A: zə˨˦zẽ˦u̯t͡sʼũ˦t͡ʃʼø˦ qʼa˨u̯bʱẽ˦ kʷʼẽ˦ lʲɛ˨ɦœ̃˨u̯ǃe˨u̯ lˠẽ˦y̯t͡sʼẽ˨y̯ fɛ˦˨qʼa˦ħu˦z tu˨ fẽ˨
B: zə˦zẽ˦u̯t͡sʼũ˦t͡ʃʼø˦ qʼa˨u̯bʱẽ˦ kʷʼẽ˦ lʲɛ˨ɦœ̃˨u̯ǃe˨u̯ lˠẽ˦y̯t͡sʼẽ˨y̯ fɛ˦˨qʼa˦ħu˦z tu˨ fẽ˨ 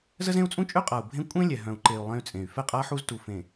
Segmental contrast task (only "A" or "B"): B